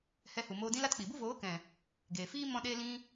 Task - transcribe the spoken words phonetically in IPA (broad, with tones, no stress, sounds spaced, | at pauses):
h ɛ˧ h u˨ m oː˧ d ĩ˦ l a˦ t k͡p i˨ b u˦ v oː˨˦ k ɛ̃˨ | ɡ eː˨ f iː˦ m ɔ̃˦ ɗ eː˦ l ĩ˦